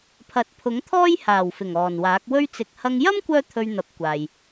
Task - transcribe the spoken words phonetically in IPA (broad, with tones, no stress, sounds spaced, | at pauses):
pʰ ɐ˨˥ t̚ pʰ ʊ˨˥ ŋ t̪ʰ ɔː˥ j h aː˨˩ w f ɪ˨˩ ŋ ɔː˨˩ n w aː˨˥ k̚ w ɵ˧ ɥ t͡s ɪ˨ k̚ h ɐ˧ ŋ j ɐ˥ m kʷ œː˥ t̪ʰ ɵ˧ ɥ n̪ ɐ˨˥ p̚ kʷ aː˨ j